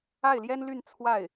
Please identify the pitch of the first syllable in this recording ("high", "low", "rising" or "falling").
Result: falling